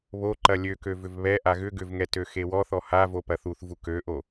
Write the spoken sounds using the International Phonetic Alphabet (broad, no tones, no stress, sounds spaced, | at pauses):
β o ǃ ɐ lʲ ø k ø v ʏ v β ɛ ʔ a ɣ ʏ ɡ ʏ v ŋ ɛ t ø x e w ɔ θ ɔ h a v o p ɐ θ u θ v u k ø ʔ o